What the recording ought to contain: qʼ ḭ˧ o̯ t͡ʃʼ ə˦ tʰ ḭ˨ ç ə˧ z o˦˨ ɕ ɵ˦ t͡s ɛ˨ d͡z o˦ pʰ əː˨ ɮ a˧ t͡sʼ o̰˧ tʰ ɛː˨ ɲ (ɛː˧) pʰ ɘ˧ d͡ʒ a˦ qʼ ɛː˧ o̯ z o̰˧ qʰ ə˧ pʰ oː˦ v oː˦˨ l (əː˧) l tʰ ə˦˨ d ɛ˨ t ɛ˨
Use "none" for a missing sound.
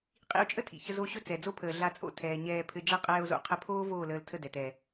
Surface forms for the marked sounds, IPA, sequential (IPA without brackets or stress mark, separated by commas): ɛː˧, əː˧